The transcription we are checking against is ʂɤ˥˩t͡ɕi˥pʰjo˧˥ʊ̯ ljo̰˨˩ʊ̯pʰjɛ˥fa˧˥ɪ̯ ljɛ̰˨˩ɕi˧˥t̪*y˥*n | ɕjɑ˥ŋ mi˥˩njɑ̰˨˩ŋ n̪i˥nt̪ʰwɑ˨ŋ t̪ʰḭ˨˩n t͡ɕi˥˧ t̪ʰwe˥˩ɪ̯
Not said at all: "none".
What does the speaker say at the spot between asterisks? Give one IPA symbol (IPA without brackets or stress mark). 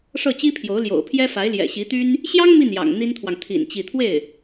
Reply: y˥